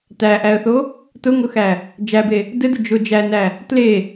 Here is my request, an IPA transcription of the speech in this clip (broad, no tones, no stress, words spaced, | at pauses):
tæʔæə̯θo | tʊŋʊxæ | d͡ʒæbe | dɘdʊ d͡ʒʊ d͡ʒænæ | tle